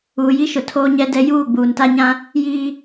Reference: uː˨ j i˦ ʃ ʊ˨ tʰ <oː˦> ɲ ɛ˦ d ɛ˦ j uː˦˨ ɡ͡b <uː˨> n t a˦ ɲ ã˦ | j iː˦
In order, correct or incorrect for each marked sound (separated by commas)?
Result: correct, correct